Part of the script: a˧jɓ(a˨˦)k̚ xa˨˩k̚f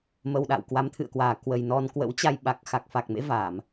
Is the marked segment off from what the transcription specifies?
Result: yes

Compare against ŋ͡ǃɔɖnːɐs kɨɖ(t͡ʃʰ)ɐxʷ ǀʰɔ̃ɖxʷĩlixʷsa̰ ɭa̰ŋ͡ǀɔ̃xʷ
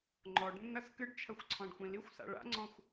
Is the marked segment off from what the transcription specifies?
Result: no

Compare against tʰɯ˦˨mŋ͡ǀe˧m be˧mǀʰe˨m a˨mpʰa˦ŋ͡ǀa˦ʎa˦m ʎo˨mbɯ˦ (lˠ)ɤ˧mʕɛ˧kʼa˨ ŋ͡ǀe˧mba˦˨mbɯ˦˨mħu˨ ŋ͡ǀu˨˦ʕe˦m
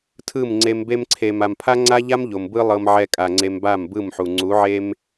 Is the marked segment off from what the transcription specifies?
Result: no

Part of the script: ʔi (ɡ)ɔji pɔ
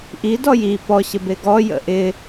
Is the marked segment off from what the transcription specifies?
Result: yes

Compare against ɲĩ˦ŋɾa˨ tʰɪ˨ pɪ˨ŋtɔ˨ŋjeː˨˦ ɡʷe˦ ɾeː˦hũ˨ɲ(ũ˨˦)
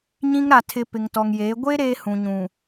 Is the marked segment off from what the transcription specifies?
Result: yes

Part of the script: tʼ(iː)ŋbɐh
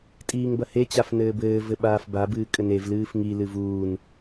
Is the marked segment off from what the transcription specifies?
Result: no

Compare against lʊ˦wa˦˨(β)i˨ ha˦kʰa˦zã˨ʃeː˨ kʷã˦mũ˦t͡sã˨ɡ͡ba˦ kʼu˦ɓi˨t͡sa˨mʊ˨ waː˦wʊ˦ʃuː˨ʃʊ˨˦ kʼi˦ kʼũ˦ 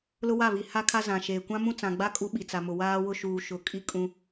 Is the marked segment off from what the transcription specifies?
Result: no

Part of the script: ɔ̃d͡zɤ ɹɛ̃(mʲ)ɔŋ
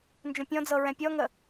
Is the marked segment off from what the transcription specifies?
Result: yes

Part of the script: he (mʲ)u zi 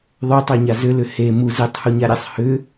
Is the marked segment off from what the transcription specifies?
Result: yes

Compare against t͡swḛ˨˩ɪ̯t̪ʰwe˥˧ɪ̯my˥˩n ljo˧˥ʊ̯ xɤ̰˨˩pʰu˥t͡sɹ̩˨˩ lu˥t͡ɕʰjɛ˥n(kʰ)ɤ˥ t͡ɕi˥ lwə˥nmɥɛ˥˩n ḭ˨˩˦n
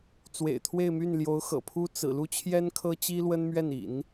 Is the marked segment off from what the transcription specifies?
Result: no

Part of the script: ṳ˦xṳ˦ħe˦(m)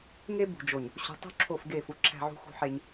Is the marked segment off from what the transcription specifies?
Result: yes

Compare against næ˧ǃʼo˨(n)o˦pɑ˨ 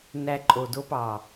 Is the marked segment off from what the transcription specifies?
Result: yes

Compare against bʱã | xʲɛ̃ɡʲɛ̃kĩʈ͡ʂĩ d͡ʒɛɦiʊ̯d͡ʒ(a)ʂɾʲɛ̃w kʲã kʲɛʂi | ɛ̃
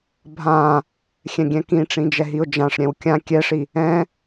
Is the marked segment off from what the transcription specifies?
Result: yes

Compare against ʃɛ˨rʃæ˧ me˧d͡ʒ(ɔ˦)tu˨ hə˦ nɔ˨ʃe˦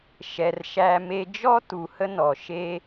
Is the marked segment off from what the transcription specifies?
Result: no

